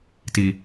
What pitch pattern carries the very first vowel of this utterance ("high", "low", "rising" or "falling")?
high